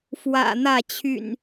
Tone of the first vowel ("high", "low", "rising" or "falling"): low